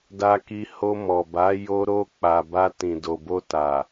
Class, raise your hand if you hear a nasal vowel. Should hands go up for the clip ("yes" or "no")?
yes